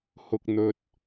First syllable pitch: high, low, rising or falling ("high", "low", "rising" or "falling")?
high